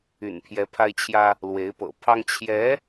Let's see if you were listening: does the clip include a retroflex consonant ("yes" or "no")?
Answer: no